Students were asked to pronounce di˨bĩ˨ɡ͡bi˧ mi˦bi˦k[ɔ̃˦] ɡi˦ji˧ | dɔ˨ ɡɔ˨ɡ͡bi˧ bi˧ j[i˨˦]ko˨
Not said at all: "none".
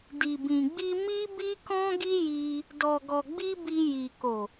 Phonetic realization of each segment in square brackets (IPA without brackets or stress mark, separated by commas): ɔ̃˦, i˨